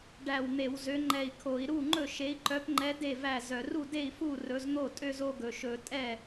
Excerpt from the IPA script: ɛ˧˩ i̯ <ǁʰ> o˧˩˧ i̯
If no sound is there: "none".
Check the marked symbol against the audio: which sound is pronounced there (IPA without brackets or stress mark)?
kʰ